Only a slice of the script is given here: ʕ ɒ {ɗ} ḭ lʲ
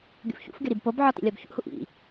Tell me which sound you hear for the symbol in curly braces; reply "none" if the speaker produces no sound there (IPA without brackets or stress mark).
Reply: t